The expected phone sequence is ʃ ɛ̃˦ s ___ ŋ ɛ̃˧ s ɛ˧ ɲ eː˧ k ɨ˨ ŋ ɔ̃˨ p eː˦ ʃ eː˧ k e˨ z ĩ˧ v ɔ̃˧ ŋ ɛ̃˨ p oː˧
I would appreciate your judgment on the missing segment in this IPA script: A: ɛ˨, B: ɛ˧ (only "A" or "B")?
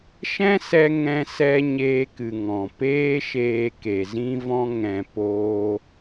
B